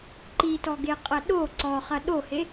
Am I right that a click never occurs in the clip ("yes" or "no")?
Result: no